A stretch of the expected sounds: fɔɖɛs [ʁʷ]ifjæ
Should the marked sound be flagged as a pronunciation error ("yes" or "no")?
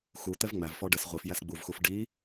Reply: no